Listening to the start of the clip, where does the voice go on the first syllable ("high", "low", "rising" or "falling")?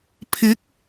rising